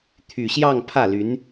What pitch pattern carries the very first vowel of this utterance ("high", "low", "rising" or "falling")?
low